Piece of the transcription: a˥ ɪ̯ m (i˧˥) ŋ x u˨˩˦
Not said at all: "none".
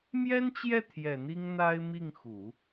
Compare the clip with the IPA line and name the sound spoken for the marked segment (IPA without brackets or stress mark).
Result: i˥˩